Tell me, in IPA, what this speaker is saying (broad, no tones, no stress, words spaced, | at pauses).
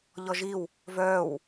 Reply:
ʎɔʒiw | vœːw